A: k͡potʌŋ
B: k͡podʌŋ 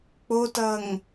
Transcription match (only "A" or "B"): A